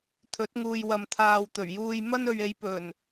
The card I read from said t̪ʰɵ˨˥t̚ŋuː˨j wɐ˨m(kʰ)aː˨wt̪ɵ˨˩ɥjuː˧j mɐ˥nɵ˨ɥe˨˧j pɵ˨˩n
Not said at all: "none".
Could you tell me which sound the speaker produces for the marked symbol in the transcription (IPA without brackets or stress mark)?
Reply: t̪ʰ